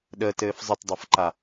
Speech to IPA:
ɗ əː t ɘː f zˤ ɘ t dˤ ɤ f ǃ a

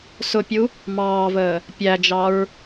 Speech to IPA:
s ʊ pʲ u | m ɑː v əː | pʲ æ d͡ʒ ɑ ɹ

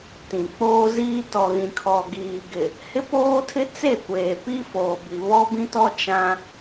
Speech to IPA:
t ĩ˨ k͡p oː˦ z iː˦ t ɔ˨ ɣ ĩ˨ kʰ ɔ˨ ɡ iː˨ ɡ ɪ˨ | h ɪ˦ p oː˦ tʰ ɪ˦ t͡s e˦˨ kʷ eː˨ p i˦ f oː˨ b i˨ β ɔ˦ b ĩ˦ t ɔ˦ t͡ʃ ã˦

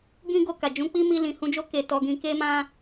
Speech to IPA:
ɡ ĩ˦ ɡ o˧ k a˨ d͡ʒ ũ˨˦ k͡p i˦ m i˧ l ĩ˨ h ũ˧ d͡ʒ o˦ k e˧ t ɔ˧ ɡ ĩ˧ k e˦ m ã˦

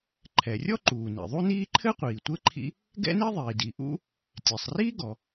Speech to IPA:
ǃʰ ɛ˩ rʲ ɔ˥ ǃ uː˩ n ḭ˩ ðˤ u˥ n iː˥ ǃʰ ɘ˥ qʷ iː˩ tʷ ɘ˥ ǃʰ ḭ˥ | ɡ ɛ̰˥ n i˥ ðˤ iː˩ d i˩ ʔ ṵ˥ | tʲ ɛ˩ sˤ r iː˥ ɡ ɔ˩

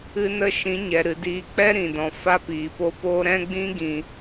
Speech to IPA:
ɨ˦ n ə˦ ʃ ĩ˨˦ ɲ ɛ˨ ɾ ɨ˨ d iː˧ k͡p ɛ˦ ɾ ĩ˨ d ɔ̃˨ f a˧ p iː˨ p o˧ p oː˦ ɾ ɛ̃˦ ɡ͡b ĩ˦ ɡ ĩ˨

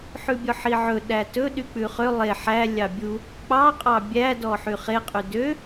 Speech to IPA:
ħ ʉ bʲ ɔ ħ i ʕ ɵ ɗ æ t ɵ ɗ y k͡p ʉ χ ø lˠ e ħ æ lʲ ɑ bʲ u | k͡p ɑ qʼ ɑ bʲ æ d ɔ ħ y χ e qʼ y d ø

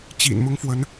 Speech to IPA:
t͡ɕ ḭ˨˩ n m ʊ˥ ŋ f w ə˧˥ n

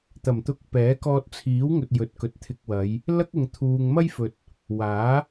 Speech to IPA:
t̪ ɐ˨˩ m t̪ ʊ˧ k̚ p ɛː˨˥ k ɔː˧ t̚ t͡sʰ iː˨˥ w ŋ ɵ˨ t̚ j ɵ˨ t̚ k ɵ˨ t̚ t̪ʰ ɪ˧ k̚ w ɐ˨˧ j | l ɐ˥ k̚ ʊ˨ ŋ t̪ʰ uː˨ ŋ m ɐ˥ j f ɵ˨ t̚ | w aː˨˥

